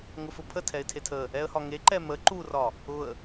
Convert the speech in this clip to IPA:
ŋʊfʊpʰə tʰɛɪ̯tʰetʰə | ɛə̯hɒŋe ǃɛmə ǃurɒ | ʊə̯

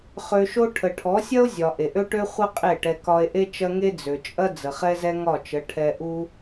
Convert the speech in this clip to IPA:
χø˧ʃo˦ ʈʰə˨ʈʰɔ˨˦sʲɐ˦o̯ zʲɒ˨ ʔe˨ʔø˦ʈø˦χʷɐ˦ qʼe˦˨ʈɛ˧ kɒ˧e̯ʔe˦t͡ʃɐ˦ŋe˦ d͡zø˨t͡ʃʼɐ˦ d͡zə˨χɛ˦zɛ˦ ŋɒ˦˨t͡ʃə˨˦ ʈʰɛ˧ʔu˦

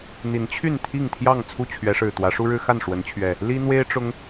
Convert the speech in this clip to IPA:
n̪i˨˦nt͡ɕʰy˥˨n t̪ʰi˥˨ŋt̪ʰjɑ˥˨ŋ t͡sʰu˥˨t͡ɕʰɥɛ˨˦ʂɻ̩˨˩ t̪wä˨˦ʂu˦ɻɻ̩˦xa˥˨n ʂwə˨˦nt͡ɕʰɥɛ˨˩ | li˦n̪we˦ɪ̯ʈ͡ʂʊ˨˦ŋ

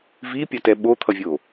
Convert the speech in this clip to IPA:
vipʲʌtɛ ɓot̪ʰʌvʲo

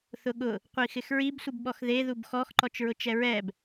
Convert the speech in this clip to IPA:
θʊɠʊ | qʷixɪxɹib sʷibɓɔxðe ðubxɔx ǃɔt͡ʃɹʊt͡ʃɛɹɛb

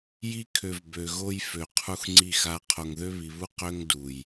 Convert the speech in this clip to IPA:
ji˦kʰø˨v bø˨ɣo˦j fø˨ qʰu˦xŋ͡ǀi˦˨xa˦ qʰo˨ŋðø˦βi˨βu˦ qø˦ŋdu˨j

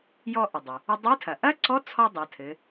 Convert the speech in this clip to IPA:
jɔ˧ʔɘ˩dˤɘ˩ | ɘ˧dˤɨ˧˥tʰɐ˩ ʔɐ˥ǀɔ˧˥ t͡sʰɔ˥dˤɐ˩˧tʰɘ˩˧

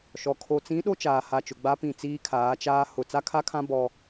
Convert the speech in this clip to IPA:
ʃɔ˨ kʰo˨t͡sĩ˨˦ ɗo˦t͡ʃaː˨ha˨t͡ʃʊ˨ ɡ͡ba˦pĩ˦˨t͡siː˦ kʰaː˨˦t͡ʃaː˦ hʊ˦˨ t͡sa˦kʰa˦kʰã˦ bɔ˦

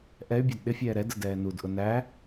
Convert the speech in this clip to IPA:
ʔɛy̯bʲɑd ɗɪfʲɛː ɾɛdə dɛːnudʔʊ næ

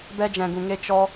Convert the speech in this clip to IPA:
bɛ˦d͡ʒɛ̃˧ɡũ˧ŋe˦ t͡ʃɔ˦

